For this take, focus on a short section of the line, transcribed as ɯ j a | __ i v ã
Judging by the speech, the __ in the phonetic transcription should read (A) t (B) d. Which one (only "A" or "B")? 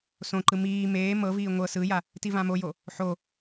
A